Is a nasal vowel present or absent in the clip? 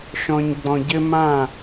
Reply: present